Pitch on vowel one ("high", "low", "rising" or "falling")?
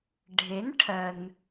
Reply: rising